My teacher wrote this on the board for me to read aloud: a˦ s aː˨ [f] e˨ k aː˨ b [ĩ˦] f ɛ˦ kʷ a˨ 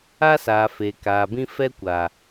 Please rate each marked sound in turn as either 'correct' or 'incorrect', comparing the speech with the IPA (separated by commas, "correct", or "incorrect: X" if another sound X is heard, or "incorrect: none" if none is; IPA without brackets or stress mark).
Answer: correct, correct